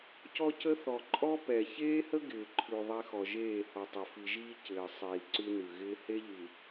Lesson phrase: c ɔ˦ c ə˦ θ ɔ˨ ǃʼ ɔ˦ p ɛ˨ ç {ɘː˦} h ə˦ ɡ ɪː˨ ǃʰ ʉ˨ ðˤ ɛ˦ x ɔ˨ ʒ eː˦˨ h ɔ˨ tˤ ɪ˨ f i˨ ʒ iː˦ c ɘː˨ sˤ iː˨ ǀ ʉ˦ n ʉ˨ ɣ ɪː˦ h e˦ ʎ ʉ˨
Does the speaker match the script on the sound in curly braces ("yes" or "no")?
no